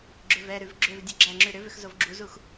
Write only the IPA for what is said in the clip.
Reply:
ɡ͡ǁʏvɛɾʉv ɡ͡ǁʏvdʲʉ ɡ͡ǁæŋ͡ǁʉ ɾʏvʏx zovɡ͡ǁuzux

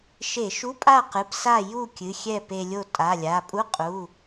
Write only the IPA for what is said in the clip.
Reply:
ʃe˧˩˧ʃu˧˥˧pʼa˥˨qɨ˩˧˩p sa˥˨ju˥˨kʲɨ˩˧˩ xʲɛ˥˨pe˧lʲo˥˨ tʼa˩˧˩lʲa˩˧˩ pʼu˧˥˧qʼu˩˧˩

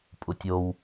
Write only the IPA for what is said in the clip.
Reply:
pʼutʲow

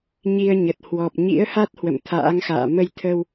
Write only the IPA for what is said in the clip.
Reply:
ɲi˧ə̯ɲə˨˩t̚ hwɔ˨˩p̚ ɲḭ˧˥ə̯ha˦˥t̚ hwə̰˧˨mt̪ʰa̰ː˧˥ŋxa̰ː˧˨ mə˧jt̪ʰə˧w

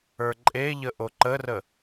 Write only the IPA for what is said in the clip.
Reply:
ə˞ǃʼeʎə ʔoǃərə

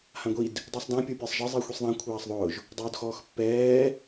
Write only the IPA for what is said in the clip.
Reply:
hãɡʷid | dˤusˤdã pʲopʲɛsˤʒɪ zˤixʷisˤðˤã kʷʰaːsˤðˤʊːʒ | dˤʊːdxɔːxpːɛː

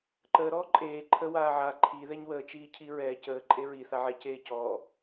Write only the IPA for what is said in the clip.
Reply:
ǃəːɾɔː ǃʼeː ǃʰə waːʕa ǃʰi ðɛɲwəːt͡ʃiː cʰiɹɛː cəː ǃʼeɹi θaʕɛceː cɔː

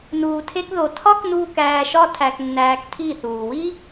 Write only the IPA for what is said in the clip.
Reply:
nuː˧tʰe˦kðo˧ tʰɒ˦knuː˧k æː˧ʃɒ˦ tʰæ˧knːæː˧ktʰi˦˨ θuː˨wi˦

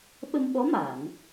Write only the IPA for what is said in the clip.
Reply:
ɓə˧mɓɔ˧˥ ma˨˩˨n

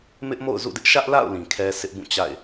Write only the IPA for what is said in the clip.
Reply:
mɪ˦ʔmo̰˦˨ʊ̯zṵ˦˨dɪ˦ʔ ʃä˦ʔla̰˦˨ʊ̯ lĩ˨kʰɛ˦ sʰɪ˦ʔbũ˦˨t͡ɕa̰˦˨ɪ̯

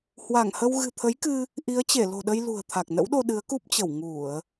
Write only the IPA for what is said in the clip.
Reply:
hwa˧˩ŋhə˧w ɣɨ̤˨˩t̪ʰə˨˦jkɨ˧ | ʔi˨˦ə̯t͡ɕe˧˩ lo̤˨˩ɗə˧j lṳ˨˩ə̯t̪ʰa˨˩k̚ nə̰˧˥wɗo˧ ɗɨ˨˦ə̯ku˦˥p̚t͡ɕə˧˩w ŋu˧˩˨ə̯

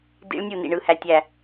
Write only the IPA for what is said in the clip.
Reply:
dḭ˦˥ɭnʲu˥˨ nḭ˥˨ɳɯ˥˨hæ˥˨ tʲæ˥˨

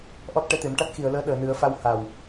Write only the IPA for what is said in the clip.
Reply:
ʔɔ˦˥t̚ ʈɛ˧˥t̪e˨˩˦m ʈa˦˥t̚xi˨˩˨ə̯ləː˧˥ ɗəː˨˩˨nɨ˨˩˦ə̯fa˧w ha˨˩w

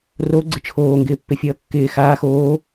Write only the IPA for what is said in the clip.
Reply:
ro ɡ͡ǀɪt͡ʃʰoːŋɡɪː pːɪfʲʌːkːɪː xaːx oː

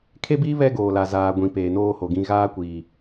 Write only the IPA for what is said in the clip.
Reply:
kʰe˦biː˦ βɛ˦ ɡoː˨la˨ zaː˨ ɡʷĩ˨ peː˨noː˦ho˨ɡĩ˦ ɣaː˦kʷiː˨

